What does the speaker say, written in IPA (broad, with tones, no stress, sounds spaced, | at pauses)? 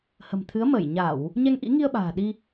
h ə̤˨˩ m t̪ʰ ɨ˨˦ ə̯ m əː˧˩ j ɲ a˧˩˨ w | ɲ ɛ˧ ŋ ʔ ḭ˧˥ ŋ i˧ ə̯ ɓ a̤ː˨˩ ɗ i˧